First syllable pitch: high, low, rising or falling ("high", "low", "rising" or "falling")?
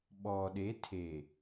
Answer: low